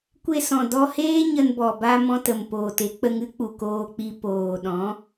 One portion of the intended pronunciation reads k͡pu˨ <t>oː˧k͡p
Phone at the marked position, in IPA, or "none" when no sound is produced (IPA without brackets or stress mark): k